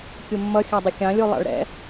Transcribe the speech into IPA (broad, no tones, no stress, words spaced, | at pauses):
kʲumːʌ xʲædˤʊxʲɑ̃ lʲulˠɑ̰ɭɾɛ̰